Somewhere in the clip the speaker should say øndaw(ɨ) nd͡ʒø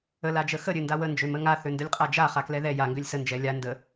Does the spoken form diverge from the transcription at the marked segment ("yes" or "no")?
yes